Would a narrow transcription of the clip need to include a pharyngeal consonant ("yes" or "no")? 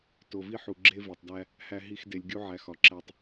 yes